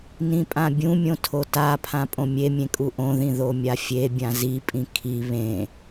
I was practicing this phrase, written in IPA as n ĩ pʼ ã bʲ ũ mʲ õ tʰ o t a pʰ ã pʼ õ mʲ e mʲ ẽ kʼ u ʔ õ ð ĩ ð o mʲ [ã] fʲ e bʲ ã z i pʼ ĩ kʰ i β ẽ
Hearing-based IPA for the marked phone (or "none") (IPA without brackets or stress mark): a